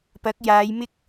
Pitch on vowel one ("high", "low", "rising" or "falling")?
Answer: rising